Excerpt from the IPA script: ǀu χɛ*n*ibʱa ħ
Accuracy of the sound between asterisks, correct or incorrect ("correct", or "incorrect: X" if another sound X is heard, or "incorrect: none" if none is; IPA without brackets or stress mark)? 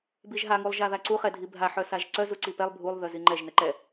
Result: incorrect: dʱ